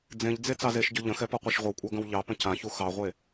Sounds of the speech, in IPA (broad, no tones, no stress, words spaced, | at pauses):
d͡zẽʎd͡ze t͡sɑzeʃɟʊ ʎə̃xɛ pɔqʷeʃʁʷəwkʷʼɑ ɡə̃wʎɑpə̃ cãçu xɑʁʷe